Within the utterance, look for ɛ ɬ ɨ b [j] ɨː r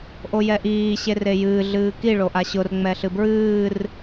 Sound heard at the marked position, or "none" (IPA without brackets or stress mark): ɹ